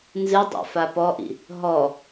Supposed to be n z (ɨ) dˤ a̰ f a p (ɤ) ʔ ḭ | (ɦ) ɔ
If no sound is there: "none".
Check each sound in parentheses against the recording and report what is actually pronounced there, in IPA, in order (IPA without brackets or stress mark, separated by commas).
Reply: ɨ, ɔ, ɦ